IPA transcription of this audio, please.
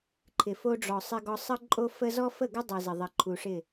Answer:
ǃʰ ɪ˨ f o˦ ɖ͡ʐ ɔ˨ sˤ ɪ˦ ɡ ɔ˦ sˤ ə˦ ǃʼ o˦ f ə˦ z ɔ˦ f ə˦˨ ɡ ʏ˦ dˤ ə˨ z ɪ˨ ðˤ ɪ˨ ǃʰ u˨ ʂ ɪ˦˨

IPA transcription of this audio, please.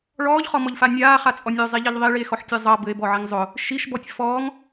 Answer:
ɭ ɔː ʎ χ ɔ m ɔ ʎ f a nʲ aː χ a t͡sʼ ɔ nʲ ø zˤ i ʎ ɛ ʎ ðˤ i ɭ i e̯ x ɔ ħ tʲ ɛ zˤ ʌ b ɘ e̯ b ɔ ʕ i ŋ zˤ ʊ | ʃ i ʃ b ɔ tʲ f ɔː ŋ

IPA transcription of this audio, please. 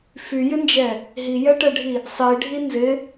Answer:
f y j ɪ n d͡ʒ ɛ | ɦ i j ɛ ʈ ɛ ɖʱ i | sˤ i ɖʱ i n z ɪ

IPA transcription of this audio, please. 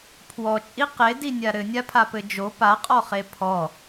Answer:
pʰ w ɔ t͡ʃʼ i q e d i nʲ a ɾ ɘ nʲ a pʰ a p ɘ d͡ʒ o p a qʼ ɔ χ e pʰ ɔ

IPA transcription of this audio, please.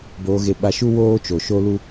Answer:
b oː˧ ɣ e˧ ɓ a˧ ʃ u˦ w oː˦ t͡ʃ o˨ ʃ o˦ l u˦

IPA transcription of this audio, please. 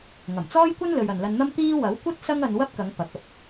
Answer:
ŋ ɐ˨˩ m t͡s ɔː˥ j kʷ ɐ˥ n l ɵ˨ ɥ ɐ˨ n l ɐ˧ n n̪ ɐ˥ m t̪ iː˥ w ɐ˨˥ w kʷ ɐ˥ t̚ s ɐ˥ ŋ ɐ˧ n w ɐ˥ p̚ k ɐ˨˧ ŋ p ɐ˨˥ k̚ ɐ˨ p̚

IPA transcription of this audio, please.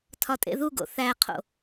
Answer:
tʰ ɒ tʼ ḛ ð u ɡ o̰ θ æ qʰ o̰

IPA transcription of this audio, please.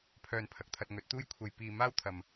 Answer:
pʰ œː˧ n pʰ ɐ˨ k̚ t̪ʰ ɐ˧ t̚ ŋ ɵ˨˥ t̚ t̪ uː˥ j kʷʰ ɐ˧ j p iː˧ m aː˥ w t̪ʰ ɐ˨ m

